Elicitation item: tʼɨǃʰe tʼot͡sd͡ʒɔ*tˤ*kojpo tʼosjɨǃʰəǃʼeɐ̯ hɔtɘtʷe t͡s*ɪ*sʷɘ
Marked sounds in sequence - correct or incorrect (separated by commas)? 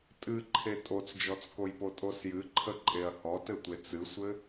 incorrect, incorrect